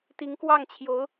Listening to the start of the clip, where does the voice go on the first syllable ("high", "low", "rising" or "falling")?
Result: rising